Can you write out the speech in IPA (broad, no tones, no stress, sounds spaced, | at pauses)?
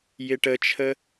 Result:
j ɪ ʈ ə t͡ʃʰ ə